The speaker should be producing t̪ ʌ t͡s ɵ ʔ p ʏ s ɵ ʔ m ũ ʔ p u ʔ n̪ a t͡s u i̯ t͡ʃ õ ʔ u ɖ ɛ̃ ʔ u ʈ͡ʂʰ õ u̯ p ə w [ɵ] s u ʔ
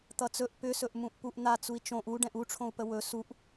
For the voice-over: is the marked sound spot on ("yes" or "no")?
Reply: yes